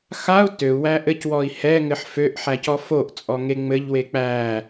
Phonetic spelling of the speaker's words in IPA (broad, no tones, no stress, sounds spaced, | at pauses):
x a u̯ t ø u̯ w æ ʔ ɘ c w ɔ i̯ h ɛ ŋ ɘ ħ f ø ʔ ħ æ c ɔ f o ʔ t͡sʼ ɔ ŋ e ŋ͡m ɘ ʎ w e k͡p æ